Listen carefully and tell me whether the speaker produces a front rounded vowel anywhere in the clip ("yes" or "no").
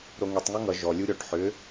yes